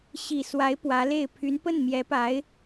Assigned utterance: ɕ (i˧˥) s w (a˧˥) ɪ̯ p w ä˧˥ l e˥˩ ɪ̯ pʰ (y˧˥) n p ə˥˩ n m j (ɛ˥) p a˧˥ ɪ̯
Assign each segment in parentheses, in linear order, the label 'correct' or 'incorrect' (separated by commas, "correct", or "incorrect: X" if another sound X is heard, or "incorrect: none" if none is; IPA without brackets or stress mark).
incorrect: i˨˩, correct, correct, incorrect: ɛ˧˥